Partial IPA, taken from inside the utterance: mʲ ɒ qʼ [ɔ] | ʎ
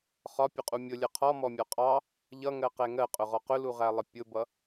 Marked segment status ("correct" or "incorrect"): incorrect